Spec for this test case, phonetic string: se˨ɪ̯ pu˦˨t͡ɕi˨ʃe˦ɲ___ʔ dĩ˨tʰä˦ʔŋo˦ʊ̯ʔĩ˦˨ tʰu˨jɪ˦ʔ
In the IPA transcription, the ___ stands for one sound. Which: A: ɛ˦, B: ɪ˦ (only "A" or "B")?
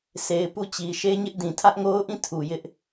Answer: B